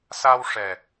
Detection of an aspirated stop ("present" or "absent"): absent